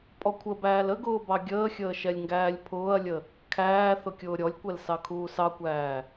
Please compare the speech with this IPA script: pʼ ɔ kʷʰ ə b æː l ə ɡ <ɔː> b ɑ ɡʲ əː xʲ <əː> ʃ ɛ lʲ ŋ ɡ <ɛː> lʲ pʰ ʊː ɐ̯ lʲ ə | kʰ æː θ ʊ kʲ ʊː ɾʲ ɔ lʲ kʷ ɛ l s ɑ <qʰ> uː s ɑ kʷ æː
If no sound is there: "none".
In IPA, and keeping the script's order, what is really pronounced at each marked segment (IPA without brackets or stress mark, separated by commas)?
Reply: ʊː, əː, æː, kʰ